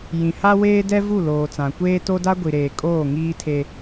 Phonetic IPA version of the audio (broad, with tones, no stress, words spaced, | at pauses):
jĩ˨ha˦ weː˦dɛ˦vu˦˨ loː˨t͡sã˨kʷeː˦ to˦da˦ɡʷi˨ɾeː˨ kʼoː˦˨ŋiː˦tʰe˦